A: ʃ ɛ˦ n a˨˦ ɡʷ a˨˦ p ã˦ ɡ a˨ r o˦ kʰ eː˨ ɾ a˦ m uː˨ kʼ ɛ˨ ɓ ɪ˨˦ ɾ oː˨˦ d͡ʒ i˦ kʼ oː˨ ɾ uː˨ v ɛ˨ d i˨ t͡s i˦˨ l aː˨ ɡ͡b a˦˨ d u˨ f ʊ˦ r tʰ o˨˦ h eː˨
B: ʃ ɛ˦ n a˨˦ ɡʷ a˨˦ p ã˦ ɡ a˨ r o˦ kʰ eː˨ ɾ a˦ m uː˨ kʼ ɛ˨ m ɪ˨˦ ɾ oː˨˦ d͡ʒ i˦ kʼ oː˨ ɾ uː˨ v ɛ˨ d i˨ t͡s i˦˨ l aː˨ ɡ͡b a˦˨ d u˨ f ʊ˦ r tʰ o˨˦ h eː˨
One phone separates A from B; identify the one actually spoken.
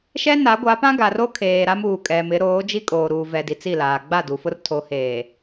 B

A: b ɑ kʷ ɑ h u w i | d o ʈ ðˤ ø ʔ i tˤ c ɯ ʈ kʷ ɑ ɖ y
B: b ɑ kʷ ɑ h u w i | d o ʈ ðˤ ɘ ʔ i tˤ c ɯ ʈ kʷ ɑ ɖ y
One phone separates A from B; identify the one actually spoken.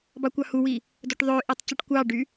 A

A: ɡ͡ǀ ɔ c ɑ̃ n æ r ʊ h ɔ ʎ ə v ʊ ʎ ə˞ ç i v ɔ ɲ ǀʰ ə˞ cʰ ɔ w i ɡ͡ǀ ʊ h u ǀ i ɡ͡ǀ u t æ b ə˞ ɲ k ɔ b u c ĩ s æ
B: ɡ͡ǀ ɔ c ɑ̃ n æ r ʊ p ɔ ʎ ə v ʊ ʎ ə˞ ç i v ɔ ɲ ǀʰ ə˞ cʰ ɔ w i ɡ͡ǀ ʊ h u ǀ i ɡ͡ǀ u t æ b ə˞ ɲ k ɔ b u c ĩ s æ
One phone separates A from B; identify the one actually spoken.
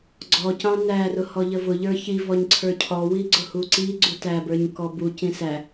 A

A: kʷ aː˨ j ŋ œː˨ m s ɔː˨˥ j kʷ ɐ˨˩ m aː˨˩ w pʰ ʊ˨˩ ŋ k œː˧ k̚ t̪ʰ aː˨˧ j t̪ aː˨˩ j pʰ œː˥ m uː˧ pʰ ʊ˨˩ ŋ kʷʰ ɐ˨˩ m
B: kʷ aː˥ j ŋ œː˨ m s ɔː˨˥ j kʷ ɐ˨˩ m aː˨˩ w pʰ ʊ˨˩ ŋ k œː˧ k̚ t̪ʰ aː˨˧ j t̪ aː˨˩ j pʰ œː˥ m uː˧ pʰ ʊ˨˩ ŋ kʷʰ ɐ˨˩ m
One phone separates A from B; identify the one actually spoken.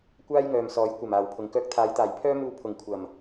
B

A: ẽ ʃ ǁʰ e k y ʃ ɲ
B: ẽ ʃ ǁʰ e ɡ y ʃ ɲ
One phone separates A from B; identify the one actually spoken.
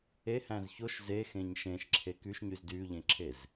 A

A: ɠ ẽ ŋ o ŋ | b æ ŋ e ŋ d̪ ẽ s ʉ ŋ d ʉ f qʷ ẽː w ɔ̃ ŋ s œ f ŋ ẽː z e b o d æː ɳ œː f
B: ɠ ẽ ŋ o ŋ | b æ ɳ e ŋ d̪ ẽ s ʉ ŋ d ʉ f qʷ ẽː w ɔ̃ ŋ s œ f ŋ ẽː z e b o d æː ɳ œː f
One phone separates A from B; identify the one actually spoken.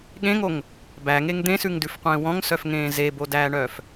A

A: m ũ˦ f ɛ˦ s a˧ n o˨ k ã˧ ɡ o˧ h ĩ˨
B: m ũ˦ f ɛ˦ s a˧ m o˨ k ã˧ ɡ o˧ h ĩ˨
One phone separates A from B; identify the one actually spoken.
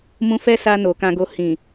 A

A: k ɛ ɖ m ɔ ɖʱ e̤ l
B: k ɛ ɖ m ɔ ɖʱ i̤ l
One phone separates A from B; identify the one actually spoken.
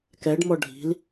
B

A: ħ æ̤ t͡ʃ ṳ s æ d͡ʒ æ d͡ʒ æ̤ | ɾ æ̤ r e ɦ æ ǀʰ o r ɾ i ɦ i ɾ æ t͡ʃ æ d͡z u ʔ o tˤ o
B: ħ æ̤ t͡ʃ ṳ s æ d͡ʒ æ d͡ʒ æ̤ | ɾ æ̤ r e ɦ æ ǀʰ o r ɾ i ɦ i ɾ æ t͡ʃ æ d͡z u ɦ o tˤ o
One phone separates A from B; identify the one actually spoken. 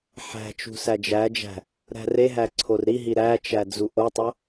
A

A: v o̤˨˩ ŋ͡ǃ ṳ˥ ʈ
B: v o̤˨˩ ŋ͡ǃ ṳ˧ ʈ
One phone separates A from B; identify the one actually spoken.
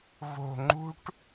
A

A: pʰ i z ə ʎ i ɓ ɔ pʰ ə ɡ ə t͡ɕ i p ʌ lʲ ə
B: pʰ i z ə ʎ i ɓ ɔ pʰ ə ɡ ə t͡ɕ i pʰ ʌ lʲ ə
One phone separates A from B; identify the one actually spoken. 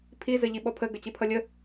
B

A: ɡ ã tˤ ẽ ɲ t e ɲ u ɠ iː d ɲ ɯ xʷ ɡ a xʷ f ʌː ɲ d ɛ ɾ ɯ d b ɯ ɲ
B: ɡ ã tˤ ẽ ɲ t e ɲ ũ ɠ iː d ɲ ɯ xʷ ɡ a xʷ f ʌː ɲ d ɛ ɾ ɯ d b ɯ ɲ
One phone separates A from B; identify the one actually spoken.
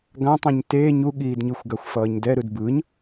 A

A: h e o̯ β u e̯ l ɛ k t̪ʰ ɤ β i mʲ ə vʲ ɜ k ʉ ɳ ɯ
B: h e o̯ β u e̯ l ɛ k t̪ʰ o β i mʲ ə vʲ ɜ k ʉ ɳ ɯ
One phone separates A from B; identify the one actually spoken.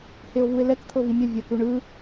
A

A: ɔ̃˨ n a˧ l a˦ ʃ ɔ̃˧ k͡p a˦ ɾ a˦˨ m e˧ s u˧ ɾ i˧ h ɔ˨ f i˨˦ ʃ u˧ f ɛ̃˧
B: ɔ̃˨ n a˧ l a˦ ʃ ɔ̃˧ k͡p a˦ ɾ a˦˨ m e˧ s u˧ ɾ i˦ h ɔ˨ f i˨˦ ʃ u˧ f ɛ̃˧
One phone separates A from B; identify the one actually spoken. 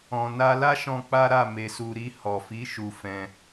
A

